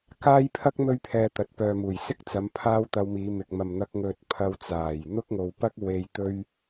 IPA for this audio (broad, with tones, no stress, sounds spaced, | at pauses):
k aː˥ j pʰ ɐ˥ k̚ m ɵ˥ ɥ pʰ ɛː˧ t̪ ɐ˨˥ t̚ p œː˨ m uː˨˩ j s ɪ˥ k̚ t͡s ɐ˨˧ m pʰ aː˥ w t̪ ɐ˧ w m iː˨˧ m ɪ˨ k̚ m ɐ˨ m n̪ ɐ˧ k̚ ŋ ɵ˧ t̚ pʰ ɐ˧ w t͡s aː˨˩ j n̪ ʊ˥ k̚ ŋ o˨ w p ɐ˥ k̚ w e˨ j t̪ ɵ˧ ɥ